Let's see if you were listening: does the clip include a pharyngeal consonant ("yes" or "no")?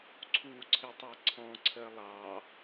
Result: no